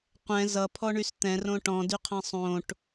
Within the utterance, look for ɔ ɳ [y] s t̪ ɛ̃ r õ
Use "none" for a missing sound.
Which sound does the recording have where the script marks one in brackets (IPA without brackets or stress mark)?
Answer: y